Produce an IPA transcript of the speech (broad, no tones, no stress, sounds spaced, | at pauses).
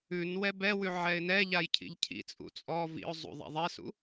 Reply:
ʉ n w ɛ b ɛ w ʉ ʕ ɛ ɪ̯ n ɛ ʎ a j cʰ ḭ ʎ cʰ ḭ t͡sʼ ṵ t͡sʼ ɔ v ḭ ʊ̯ zˤ ṵ ðˤ a̰ ðˤ ɛ s ṵ